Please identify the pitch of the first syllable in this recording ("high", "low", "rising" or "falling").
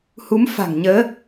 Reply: rising